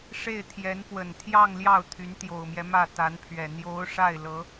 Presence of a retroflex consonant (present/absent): present